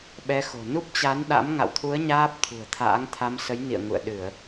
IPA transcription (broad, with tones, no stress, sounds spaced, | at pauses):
ɓ ɛ˧ x o̤˨˩ n u˦˥ p̚ t͡ɕ a˨˦ n ɗ a̰˧˥ m ŋ a̰˧˨ w t̪ʰ u˨˦ ə̯ ɲ aː˦˥ p̚ t̪ʰ ṳ˨˩ ə̯ t̪ʰ a̰ː˧˥ ŋ t̪ʰ a˧ m s ə˨˦ j n ḭ˧˨ ə̯ ŋ ṵ˧˨ ə̯ ɗ ɨ˧˩˨ ə̯